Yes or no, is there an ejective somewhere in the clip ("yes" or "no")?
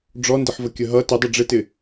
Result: no